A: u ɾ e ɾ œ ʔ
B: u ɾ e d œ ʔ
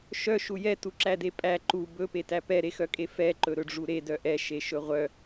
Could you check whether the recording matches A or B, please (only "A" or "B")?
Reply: B